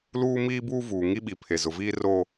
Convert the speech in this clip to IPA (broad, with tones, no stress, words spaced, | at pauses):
luː˦miː˦buː˦ vuː˨ŋi˦ ɓi˨pʰe˨ zʊ˨viː˦ro˦